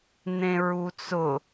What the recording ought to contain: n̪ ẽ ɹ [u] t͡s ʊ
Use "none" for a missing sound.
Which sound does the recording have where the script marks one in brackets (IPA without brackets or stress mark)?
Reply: u